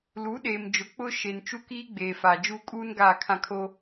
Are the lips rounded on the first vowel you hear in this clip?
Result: yes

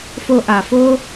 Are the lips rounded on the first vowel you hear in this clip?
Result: yes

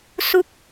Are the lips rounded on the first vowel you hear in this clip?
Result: yes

